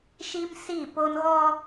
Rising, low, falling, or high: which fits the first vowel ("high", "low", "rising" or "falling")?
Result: high